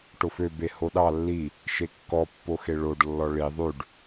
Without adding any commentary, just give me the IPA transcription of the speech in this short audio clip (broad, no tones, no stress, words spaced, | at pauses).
ʈofø behoɗɑ lːi | ʃekːɔpːo xeɭoɖlːɔ ɭi ðˤʉɖ